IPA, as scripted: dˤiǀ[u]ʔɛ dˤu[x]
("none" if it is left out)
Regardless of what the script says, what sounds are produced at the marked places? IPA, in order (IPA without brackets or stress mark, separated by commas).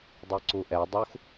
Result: u, x